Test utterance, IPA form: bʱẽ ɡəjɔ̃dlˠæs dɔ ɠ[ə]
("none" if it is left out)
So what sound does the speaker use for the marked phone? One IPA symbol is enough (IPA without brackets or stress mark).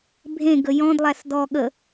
ə